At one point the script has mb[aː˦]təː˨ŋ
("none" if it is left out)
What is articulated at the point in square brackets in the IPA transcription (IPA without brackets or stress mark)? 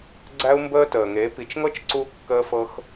əː˦